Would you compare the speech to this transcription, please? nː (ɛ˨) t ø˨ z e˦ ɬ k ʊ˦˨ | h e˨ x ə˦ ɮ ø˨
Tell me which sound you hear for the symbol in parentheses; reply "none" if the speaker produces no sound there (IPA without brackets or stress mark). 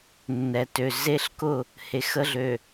ɛ˨